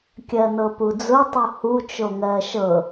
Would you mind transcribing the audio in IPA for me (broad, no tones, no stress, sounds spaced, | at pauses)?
kʲ ɜ n ɤ p u d͡z ʊ tˤ u h u t͡ʃ o ŋ ɜ ʃ ɤ